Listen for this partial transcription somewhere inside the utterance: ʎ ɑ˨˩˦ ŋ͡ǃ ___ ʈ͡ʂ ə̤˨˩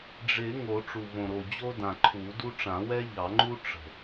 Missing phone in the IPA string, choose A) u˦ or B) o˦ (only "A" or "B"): A